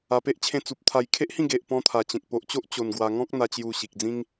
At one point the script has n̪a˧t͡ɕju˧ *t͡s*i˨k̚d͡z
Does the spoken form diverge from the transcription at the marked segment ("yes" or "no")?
yes